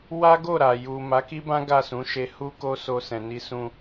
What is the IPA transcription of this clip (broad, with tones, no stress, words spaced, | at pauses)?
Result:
wa˦ɡo˦˨ɾa˨ ju˨ ma˨˦ki˦bã˦ ɡa˦˨sũ˨˦ʃe˧ hu˦ko˦ so˧sɛ̃˨ni˧ sũ˧